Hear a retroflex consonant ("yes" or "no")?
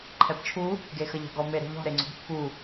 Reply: no